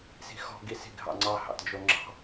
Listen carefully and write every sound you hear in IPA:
s i̤ x ɔ̤ ɡ i s i̤ ɡʱ ɑ̰ ŋ͡ǀ ɑ h ɑ̰ t d͡ʒ o ŋ͡ǁ ɑ̤

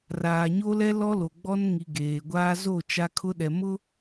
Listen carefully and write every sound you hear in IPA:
r aː˨ ɲ o˦ l ɛ˦ l ɔ˦ l o˨ ɡ͡b ɔ˦ n ŋ i˨ ɡ eː˨ ɡʷ aː˦ z o˦˨ t͡ʃ a˦ kʰ ʊ˦ ɗ ɛ˨ m ʊ˦

